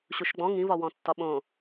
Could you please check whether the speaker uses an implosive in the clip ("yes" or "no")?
yes